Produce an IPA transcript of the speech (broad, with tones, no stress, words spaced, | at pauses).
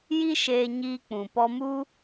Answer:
ji˦ʃeː˧ ɲiː˧k͡pũ˨pɔ˧mu˦